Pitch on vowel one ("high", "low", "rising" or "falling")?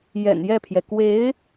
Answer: low